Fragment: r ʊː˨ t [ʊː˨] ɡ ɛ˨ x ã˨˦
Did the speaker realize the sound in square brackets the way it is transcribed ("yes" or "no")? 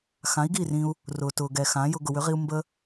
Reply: yes